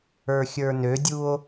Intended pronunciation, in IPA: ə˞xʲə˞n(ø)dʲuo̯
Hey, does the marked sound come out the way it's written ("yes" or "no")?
yes